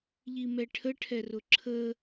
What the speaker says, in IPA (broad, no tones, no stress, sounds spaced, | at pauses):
ʎ i m ɛ ʈʰ ə ʈʰ ɛ r ʊ ǁʰ ə